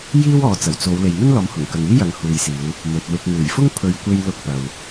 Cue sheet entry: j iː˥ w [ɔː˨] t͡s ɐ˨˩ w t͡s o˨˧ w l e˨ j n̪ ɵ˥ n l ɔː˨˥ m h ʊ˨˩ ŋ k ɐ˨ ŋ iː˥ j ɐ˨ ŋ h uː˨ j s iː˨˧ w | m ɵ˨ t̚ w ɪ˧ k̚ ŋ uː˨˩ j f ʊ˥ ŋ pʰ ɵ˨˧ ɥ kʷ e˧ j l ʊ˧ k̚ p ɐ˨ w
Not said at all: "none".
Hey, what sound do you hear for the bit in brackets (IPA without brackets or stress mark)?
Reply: ɔː˨˧